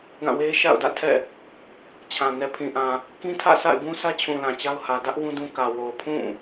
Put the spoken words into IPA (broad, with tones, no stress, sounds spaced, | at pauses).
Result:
ɡ ã˦˨ w e˦ ʃ a̰˦˨ ʊ̯ d ä̰˦˨ tʰ ɛ̰˦˨ | t͡ɕʰ ã˨ n ɛ˨ pʰ ĩ˨ ʔ ã˨ | k ĩ˦ tʰ ä̰˦˨ sʰ a̰˦˨ ɪ̯ b ũ˦ s ä˦ t͡ɕʰ ũ˨ l ã˨ t͡ɕ a˦ ʊ̯ h ä˨ d ä˦ ʔ w ũ˦ d ũ˦ k ä˨ w o˨ ʊ̯ pʰ ũ˦˨